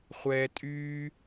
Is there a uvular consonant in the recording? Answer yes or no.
yes